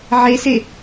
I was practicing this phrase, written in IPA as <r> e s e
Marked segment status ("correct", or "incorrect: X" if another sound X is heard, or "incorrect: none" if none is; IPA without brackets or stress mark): incorrect: ʕ